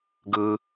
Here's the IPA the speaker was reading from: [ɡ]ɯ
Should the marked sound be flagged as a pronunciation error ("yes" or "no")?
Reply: no